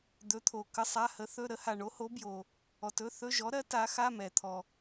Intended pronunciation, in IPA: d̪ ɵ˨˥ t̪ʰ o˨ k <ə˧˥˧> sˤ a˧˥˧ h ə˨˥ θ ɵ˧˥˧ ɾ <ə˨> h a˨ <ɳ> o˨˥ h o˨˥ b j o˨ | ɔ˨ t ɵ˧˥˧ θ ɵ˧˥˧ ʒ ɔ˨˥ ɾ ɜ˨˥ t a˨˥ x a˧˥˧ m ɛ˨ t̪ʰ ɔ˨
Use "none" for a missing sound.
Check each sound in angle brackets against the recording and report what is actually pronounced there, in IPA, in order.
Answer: ə˧˥˧, ə˨˥, ɳ

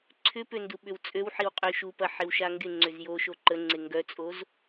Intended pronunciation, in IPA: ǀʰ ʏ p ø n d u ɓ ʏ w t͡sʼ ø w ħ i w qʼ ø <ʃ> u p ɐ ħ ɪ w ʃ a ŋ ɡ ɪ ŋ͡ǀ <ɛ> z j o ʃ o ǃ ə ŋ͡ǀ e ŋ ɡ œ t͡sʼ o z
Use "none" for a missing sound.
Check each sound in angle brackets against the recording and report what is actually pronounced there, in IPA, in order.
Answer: ʃ, ʏ

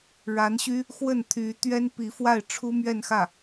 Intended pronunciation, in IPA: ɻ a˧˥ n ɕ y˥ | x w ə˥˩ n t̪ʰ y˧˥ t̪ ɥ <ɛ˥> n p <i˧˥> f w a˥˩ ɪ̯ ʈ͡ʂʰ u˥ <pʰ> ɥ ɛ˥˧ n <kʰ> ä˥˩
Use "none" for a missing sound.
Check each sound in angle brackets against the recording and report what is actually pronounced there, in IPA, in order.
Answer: ɛ˥, i˧˥, m, x

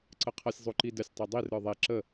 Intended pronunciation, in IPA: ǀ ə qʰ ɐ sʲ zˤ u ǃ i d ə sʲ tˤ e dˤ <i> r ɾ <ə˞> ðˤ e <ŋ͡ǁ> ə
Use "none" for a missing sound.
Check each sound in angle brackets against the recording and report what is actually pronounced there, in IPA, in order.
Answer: i, ə˞, ǁ

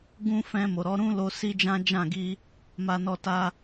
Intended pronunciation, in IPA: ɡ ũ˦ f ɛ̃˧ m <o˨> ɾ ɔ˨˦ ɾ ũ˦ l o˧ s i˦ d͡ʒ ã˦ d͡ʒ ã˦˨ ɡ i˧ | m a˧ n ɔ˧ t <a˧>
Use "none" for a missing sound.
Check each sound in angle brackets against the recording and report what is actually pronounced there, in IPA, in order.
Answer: o˨, a˧

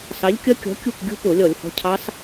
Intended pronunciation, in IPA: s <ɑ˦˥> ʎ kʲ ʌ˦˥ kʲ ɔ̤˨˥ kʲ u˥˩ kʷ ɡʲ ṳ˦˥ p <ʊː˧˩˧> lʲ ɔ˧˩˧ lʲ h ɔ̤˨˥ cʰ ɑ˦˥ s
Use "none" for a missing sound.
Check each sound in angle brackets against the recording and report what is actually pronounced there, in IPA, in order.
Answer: ɑ˨˥, ʊː˧˩˧

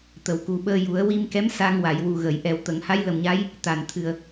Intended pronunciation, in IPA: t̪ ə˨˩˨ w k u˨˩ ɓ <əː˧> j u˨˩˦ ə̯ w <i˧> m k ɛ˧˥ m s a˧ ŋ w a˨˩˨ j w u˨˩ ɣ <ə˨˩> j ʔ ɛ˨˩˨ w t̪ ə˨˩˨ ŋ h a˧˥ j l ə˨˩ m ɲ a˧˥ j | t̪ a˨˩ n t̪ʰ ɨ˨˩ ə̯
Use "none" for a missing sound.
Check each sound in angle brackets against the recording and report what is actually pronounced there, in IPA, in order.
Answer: əː˧, i˧, ə˨˩˨

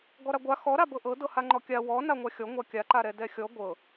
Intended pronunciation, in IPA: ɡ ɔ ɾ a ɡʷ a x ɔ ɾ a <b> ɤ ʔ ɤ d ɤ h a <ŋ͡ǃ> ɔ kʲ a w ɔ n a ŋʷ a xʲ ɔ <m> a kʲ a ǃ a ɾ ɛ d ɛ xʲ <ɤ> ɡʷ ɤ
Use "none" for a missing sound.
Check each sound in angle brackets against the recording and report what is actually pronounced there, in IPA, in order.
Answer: b, ŋ͡ǃ, ŋʷ, ɔ

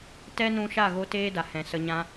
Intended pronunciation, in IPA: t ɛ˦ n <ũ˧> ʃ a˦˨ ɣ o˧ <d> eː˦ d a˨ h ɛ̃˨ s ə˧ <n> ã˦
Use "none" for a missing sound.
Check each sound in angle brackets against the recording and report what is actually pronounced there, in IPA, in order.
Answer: ũ˧, t, ɲ

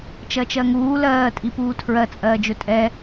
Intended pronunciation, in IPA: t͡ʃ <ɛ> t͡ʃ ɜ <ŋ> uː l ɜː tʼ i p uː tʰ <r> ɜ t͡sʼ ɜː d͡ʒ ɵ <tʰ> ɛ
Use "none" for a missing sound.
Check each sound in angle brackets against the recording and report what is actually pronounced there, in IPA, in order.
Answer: ɜ, ŋ, ɹ, tʼ

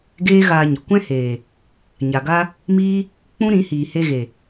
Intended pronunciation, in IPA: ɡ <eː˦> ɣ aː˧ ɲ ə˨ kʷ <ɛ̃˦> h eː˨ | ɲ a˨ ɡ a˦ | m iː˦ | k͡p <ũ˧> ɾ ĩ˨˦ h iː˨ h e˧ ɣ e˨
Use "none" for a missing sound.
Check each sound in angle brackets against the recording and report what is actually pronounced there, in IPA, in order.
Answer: eː˦, ɛ̃˦, ũ˦

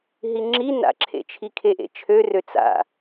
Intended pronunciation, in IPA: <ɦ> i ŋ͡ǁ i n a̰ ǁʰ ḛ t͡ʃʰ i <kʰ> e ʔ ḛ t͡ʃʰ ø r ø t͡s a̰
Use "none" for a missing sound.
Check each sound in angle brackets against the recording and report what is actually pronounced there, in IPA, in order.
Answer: ɦ, kʰ

